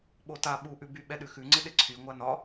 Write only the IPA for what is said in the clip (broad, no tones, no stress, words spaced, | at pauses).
ɓota ɓuʔʉby ɓɛɗʉxʉŋ͡ǀɪ ɗɪǀʰy ŋʷanɒ